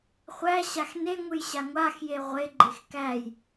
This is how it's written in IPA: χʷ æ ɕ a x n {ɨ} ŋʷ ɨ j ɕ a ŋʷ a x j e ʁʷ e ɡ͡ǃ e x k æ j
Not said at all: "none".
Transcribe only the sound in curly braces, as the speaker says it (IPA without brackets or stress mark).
e